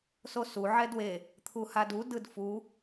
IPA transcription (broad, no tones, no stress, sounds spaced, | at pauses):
s o s u ʕ ɛ d w e | t̪ʰ u h a d u d ɯ d f u